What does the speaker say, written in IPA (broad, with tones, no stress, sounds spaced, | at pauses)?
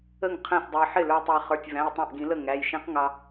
ə˥˩ ŋ qʰ æ̃˥˩ s dˤ ʊ˧ ɪ̯ ħ ɪ˥˩ l ə˞˧ tˤ æ˧ χ ə˞˩˧˩ tʲ v æ̃˩˧˩ j tˤ æ̃˥˩ ʔ ɡ ĩ˨˩˦ l ə˥˩ ŋ æ˩˧˩ j ʃ ĩ˦˥ q ŋ ɑ˧